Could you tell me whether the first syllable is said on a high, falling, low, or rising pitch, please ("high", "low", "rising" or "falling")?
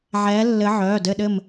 rising